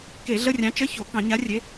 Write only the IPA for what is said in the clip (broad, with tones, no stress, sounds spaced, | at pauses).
k e˧˩˧ ɮ ə˧˥˧ rʲ ɑ̃˨˥ t͡ʃ ə˧˥˧ ç o˧˩˧ k ɑ̃˧˩˧ ɲ a˨˥ rʲ e˨˥